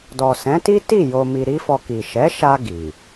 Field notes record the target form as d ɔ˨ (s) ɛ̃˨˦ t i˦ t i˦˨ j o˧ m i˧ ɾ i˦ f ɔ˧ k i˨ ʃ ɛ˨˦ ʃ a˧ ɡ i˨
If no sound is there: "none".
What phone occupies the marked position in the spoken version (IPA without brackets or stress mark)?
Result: s